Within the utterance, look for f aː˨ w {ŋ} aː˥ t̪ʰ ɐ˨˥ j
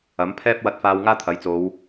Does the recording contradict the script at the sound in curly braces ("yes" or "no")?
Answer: no